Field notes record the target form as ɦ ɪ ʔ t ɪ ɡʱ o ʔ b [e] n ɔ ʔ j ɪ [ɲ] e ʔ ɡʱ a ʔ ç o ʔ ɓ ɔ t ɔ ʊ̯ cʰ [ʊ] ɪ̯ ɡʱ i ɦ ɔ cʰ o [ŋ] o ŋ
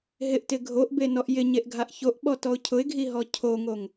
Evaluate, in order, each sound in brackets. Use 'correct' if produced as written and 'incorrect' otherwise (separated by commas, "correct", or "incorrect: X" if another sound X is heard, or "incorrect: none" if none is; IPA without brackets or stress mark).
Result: correct, correct, correct, correct